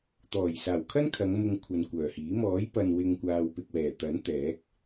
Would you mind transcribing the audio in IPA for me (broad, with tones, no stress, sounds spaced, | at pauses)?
t̪ ɔː˨˩ j s aː˨˩ w kʰ ɐ˥ n kʰ ɐ˨˧ ŋ m ʊ˧ ŋ kʷʰ ɐ˨ n kʷ œː˨˩ h iː˨˥ m ɔː˨˥ j p ɐ˨ n w ɪ˧ ŋ kʷ aː˨ w p ɪ˨ k̚ w ɛː˨˩ t̪ ɐ˨˥ n t̪ ɛː˨˥ k̚